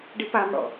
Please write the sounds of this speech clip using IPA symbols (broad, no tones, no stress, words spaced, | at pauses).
ɖipamɽɔ̰